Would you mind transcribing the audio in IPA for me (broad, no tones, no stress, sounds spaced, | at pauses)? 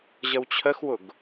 ʑ ə w t͡ɕʰ ə x w ʊ ɡ